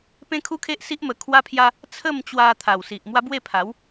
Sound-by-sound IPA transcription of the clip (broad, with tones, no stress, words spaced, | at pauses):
pẽ˦kʰu˦kʰe˦ʔsi˦ʔ mə˧kʰwa˦pʰja˦ | t͡sʰə˥˧mt͡ɕwa˧ t̪ʰa˨˩w si˨ʔmwa˦ bwe˥˧pʰa˨˦w